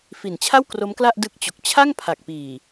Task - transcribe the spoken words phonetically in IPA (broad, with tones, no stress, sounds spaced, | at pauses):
f i˨˩ n t͡ɕʰ a˥˩ w k r o˦˥ m k l a˥˩ ʔ d ɯ˦˥ k̚ t͡ɕ o˨˩ k̚ t͡ɕʰ a˥˩ ŋ pʰ a˨˩ k̚ p iː˨˩